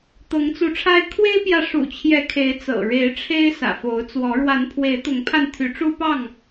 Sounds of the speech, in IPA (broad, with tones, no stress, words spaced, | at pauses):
t̪ɤ˨˦ŋt͡su˨˦ʈ͡ʂʰa˦ɪ̯ kʰwe˦ɪ̯pjä˨ʂṵ˨˩t͡ɕʰjɛ˨˦ kʰe˨˦ɪ̯ t͡sɤ̰˨˩ɻe˨˦ɪ̯ʈ͡ʂʰe˦ɪ̯ sä̰˨˩fo˨˦ʊ̯t͡swɔ˨˦ ɻwa˨˦npʰwe˨˦ɪ̯t̪ʊ˨˦ŋpʰa˧n t̪ʰy˨˦ʈ͡ʂu˦pɑ˥˨ŋ